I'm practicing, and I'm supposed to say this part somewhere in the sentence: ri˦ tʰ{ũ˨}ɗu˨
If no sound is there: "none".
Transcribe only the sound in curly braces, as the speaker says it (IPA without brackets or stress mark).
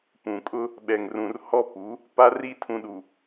ũ˨